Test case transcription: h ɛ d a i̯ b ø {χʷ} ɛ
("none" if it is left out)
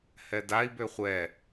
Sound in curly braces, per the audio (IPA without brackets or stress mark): χʷ